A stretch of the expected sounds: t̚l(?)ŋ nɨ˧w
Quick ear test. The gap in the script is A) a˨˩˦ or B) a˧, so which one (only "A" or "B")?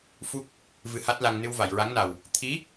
B